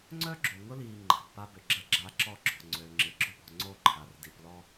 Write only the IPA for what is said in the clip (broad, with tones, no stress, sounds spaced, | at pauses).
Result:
ŋ͡ǀ œ˦ ɡ͡ǁ o˨ ŋ ʊ˦ l iː˨ ŋ͡ǃ a̤˨ b p a˦ b ʏ˨ ɡ͡ǁ ɐ˦ ɡ͡ǁ a˦ ǁ ɔ˦ ɡ͡ǁ ɔ̤˨ ŋ͡ǀ ø˨ ŋ͡ǁ ɪ˨ ɡ͡ǁ ʊ˦ p ɔ̤˨ ŋ͡ǀ o˦˨ ǃʰ a˨ r d i˨ p l ɔ˦